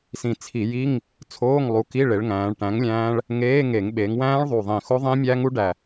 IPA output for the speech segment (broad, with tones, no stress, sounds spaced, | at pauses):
s ĩ˨˩ t͡sʰ i˧˩˧ j i˧˥˧ ŋ | t͡sʰ oː˧˥˧ ŋ lˠ u˨˥ k i˧˥˧ ɭ e˩˧ ɭ ŋ æ̃ː˩˧ ɭ ʈ æ̃˨˥ ŋ lʲ æ̃ː˦˥ ɭ | ŋ eː˧˥˧ ŋ e˧˩˧ ŋ ɓ e˩˧ ŋ w æ̃ː˦˥ ɭ ðˤ u˨˩ ðˤ ĩ˨˩ x o˦˥ ðˤ ĩ˦˥ mʲ æ˦˥ ŋ u˦˥ ɖ æ˨˩